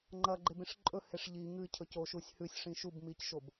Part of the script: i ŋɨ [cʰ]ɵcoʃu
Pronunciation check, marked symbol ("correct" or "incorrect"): correct